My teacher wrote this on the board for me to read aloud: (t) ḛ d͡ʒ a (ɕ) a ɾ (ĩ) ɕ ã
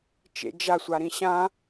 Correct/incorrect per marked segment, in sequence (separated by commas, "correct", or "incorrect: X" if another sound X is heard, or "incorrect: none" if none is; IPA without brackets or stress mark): incorrect: t͡ʃ, incorrect: sʷ, correct